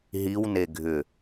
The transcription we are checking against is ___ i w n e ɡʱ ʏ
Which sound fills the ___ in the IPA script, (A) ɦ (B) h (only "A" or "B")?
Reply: A